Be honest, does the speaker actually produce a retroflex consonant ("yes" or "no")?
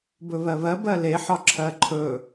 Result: no